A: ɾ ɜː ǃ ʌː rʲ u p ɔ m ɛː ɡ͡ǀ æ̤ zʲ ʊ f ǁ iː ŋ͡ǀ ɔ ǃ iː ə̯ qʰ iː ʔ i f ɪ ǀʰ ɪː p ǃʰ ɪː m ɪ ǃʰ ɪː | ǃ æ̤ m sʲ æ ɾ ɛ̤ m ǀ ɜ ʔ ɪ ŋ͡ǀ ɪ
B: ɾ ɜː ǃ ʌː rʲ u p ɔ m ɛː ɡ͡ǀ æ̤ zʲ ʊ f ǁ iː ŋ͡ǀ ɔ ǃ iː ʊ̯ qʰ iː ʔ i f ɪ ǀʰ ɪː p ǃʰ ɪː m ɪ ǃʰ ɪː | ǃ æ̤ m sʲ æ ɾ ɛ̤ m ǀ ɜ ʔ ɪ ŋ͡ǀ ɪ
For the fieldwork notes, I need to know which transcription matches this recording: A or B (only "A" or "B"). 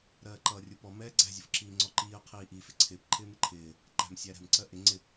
A